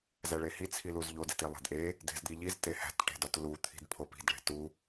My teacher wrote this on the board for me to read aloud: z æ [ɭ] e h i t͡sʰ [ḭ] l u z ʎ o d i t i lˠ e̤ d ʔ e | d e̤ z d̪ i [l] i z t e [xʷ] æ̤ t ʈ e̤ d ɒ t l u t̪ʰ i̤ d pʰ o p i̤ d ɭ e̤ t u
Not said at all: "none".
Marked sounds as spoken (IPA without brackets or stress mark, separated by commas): ɭ, i, ʎ, h